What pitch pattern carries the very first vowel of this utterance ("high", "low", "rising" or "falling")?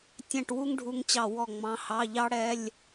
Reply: falling